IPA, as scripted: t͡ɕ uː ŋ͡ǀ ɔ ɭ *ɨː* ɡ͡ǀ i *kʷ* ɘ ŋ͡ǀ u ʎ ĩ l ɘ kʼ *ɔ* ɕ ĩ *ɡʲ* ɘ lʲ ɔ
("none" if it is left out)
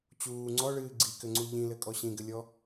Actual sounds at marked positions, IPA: ɨː, k, ɔ, ɡ

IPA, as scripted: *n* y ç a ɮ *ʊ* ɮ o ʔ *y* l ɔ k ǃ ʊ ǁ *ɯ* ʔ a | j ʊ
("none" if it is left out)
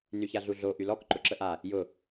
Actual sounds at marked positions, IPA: n, u, y, ə

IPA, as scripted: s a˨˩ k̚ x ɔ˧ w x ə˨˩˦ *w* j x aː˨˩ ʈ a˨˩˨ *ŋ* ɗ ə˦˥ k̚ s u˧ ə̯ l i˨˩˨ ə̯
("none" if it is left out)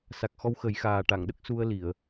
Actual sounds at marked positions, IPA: none, ŋ

